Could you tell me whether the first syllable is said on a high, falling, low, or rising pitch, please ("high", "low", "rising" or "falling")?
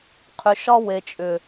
low